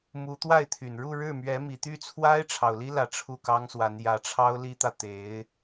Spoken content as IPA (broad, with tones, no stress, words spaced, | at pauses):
mu˧˥t̪wa˥˩ɪ̯ t̪ʰy˨˩nɻu˥˧ɻɻ̩˥˩ mɥɛ˧˥mi˨˩t̪y˥˩t͡sʰwa˥ɪ̯ ʈ͡ʂʰɑ˨˩ʊ̯li˥lä˨˩ ʈ͡ʂʰu˥˩kɑ˥ŋswa˧˥n jä˧˥ʈ͡ʂʰɑ˥ʊ̯ li˥t̪ä˨ t̪e˧˥ɪ̯